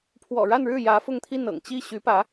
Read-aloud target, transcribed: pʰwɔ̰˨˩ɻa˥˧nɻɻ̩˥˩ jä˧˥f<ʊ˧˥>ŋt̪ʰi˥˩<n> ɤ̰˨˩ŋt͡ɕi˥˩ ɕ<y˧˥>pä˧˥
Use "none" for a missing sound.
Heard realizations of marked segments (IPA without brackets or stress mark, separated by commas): ʊ˥˧, n, y˧˥